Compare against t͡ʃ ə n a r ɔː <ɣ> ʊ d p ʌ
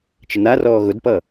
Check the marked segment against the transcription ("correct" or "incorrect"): correct